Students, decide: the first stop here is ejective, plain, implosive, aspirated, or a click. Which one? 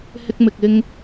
plain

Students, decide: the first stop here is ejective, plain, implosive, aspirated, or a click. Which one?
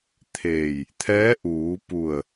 aspirated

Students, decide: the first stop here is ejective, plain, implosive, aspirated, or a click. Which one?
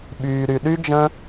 implosive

